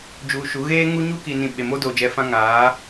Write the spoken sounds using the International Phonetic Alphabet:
d͡ʒ uː˨ ʃ u˨˦ ɣ eː˦ ŋ u˦ ɲ u˦ k i˨ n ĩ˨ ɓ e˨ m o˦ d oː˨ d͡ʒ ɛ˨˦ f ã˦ ŋ aː˨˦

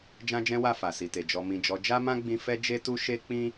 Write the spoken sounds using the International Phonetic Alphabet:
d͡ʒ ã˦ d͡ʒ ɛ̃˦ w a˦˨ f a˨ s i˨ t e˨ d͡ʒ ɔ˨ m ĩ˨ d͡ʒ ɔ˨˦ d͡ʒ a˦ m ã˦ ɡ͡b ĩ˧ f ɛ˦ d͡ʒ e˦ t u˦ ʃ e˦ k͡p ĩ˦

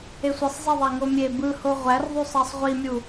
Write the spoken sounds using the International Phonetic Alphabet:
e sʷ e sˤ zˤ e ðˤ æ ŋ o mʲ e b ɯ h o ʁʷ æ r ðˤ y sˤ ɑ sˤ ʁʷ i mʲ u

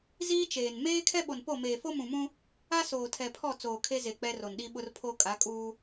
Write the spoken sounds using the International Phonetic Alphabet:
z iː˦ t͡ʃ eː˨ n m eː˦ kʰ ɛ˦ ɓ o˨ n p o˦˨ m eː˨ f o˦ m ũ˨ m ũ˦ | a˦ s oː˨ tʰ ɛ˨ pʰ ɔ˦˨ t͡s oː˨ kʰ e˦ z e˨ k͡p ɛ˦ r o˨ n ɗ i˦ ɓ ʊ˦ r pʰ o˦ kʼ a˨˦ kʼ uː˦

